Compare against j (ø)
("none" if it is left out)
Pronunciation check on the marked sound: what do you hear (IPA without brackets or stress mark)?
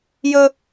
ɵ